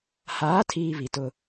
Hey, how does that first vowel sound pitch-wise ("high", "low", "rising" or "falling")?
rising